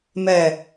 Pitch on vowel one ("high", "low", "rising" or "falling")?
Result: low